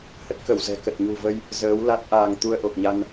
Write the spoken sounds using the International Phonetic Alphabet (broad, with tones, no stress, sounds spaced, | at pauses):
h ə˦˥ t̚ k ə˧˩ w z ɛ̤˨˩ k ə˨˩ t̚ ɲ ṳ˨˩ v ə˧ j | z əː˨˦ w l a˦˥ t̚ ʔ aː˧ ŋ t̪ u˧ ə̯ ʔ o˨˩ k̚ ɲ a˧ n